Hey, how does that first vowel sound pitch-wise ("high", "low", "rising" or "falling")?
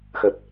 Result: low